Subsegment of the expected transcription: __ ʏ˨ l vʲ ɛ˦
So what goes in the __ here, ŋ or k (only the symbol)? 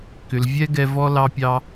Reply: k